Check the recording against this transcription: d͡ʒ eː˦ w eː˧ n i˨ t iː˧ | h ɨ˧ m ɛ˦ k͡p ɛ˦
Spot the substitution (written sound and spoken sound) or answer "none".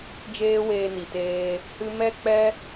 iː˧ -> eː˧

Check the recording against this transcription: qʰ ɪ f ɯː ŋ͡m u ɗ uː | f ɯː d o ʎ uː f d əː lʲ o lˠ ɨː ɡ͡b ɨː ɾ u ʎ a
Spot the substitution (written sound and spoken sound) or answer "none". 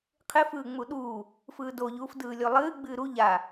əː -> ɯː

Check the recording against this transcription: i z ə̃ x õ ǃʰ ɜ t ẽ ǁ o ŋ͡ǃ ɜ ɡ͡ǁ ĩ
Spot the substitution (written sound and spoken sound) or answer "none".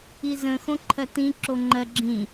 ẽ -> ĩ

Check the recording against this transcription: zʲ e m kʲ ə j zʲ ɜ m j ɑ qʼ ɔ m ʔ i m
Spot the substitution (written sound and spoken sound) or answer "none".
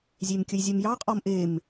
i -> e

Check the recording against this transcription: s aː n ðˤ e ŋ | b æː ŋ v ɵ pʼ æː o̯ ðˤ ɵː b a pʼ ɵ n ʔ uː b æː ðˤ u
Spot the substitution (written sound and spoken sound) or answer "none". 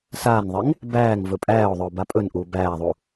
none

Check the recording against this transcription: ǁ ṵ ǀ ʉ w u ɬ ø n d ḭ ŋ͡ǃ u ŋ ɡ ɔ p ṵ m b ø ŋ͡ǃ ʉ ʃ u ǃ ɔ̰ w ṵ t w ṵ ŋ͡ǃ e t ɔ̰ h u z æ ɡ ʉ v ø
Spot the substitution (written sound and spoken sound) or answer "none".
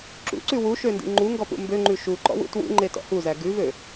ɬ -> ʃ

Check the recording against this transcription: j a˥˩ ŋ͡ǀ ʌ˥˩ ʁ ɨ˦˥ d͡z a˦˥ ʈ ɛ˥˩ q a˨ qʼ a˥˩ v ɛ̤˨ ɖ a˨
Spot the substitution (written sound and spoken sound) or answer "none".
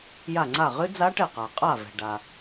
ʌ˥˩ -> a˥˩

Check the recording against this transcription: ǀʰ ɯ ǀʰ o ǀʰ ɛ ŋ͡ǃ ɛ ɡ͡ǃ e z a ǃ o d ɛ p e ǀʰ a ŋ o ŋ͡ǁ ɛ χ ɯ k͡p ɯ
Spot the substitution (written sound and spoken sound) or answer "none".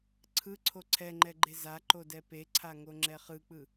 none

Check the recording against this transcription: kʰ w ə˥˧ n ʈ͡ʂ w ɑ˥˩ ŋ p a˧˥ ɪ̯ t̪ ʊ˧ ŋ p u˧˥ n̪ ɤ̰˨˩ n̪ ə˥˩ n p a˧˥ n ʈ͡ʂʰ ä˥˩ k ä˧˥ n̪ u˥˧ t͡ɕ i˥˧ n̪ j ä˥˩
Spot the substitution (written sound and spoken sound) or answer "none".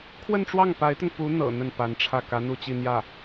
none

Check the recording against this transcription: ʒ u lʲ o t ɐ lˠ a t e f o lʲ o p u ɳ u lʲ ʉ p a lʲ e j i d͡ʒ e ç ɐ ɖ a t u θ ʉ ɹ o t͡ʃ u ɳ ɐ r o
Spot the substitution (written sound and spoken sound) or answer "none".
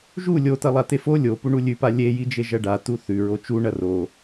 ç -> ʒ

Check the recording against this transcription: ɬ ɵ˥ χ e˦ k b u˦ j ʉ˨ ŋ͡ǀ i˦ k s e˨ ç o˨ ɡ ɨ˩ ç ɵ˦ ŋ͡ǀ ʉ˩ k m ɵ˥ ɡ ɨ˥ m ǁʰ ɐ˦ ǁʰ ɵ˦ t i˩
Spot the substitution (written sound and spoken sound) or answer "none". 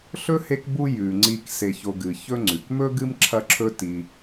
χ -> h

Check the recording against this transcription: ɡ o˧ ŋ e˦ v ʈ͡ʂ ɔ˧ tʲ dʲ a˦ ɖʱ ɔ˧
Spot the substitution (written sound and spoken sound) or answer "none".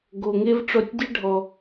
none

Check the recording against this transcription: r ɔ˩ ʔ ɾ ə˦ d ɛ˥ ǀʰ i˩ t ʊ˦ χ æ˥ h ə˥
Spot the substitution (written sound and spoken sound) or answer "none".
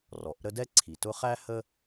none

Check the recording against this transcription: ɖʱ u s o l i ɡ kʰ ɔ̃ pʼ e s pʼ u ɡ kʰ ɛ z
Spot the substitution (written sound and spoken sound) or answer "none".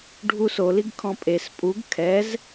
none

